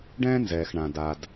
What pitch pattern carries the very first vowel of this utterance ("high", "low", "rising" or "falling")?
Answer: high